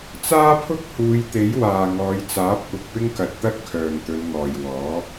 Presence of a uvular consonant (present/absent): absent